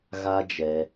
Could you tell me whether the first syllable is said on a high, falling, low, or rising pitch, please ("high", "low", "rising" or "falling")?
high